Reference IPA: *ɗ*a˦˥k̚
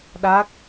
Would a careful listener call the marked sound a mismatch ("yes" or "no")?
no